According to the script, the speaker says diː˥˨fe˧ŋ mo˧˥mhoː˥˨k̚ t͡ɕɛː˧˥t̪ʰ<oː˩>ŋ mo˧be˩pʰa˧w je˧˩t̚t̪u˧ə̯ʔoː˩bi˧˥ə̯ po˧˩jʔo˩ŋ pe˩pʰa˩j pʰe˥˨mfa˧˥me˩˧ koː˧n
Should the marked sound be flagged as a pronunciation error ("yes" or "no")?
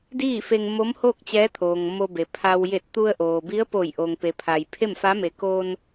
no